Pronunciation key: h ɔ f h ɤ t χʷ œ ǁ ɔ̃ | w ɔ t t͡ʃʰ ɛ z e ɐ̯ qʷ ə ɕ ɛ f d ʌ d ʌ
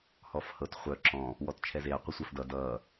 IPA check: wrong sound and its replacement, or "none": ɕ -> sʷ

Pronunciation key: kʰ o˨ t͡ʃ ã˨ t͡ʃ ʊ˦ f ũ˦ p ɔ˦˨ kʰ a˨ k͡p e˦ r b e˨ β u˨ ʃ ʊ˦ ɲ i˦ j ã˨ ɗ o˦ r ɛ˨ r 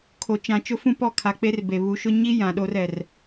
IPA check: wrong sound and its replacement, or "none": none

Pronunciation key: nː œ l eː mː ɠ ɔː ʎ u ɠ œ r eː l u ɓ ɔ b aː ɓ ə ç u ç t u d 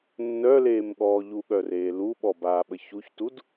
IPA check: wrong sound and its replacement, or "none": mː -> m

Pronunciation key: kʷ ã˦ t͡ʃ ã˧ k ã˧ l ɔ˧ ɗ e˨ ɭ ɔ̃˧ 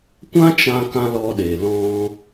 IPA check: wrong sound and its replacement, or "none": ɭ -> l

